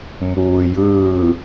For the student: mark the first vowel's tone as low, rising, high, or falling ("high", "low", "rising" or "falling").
low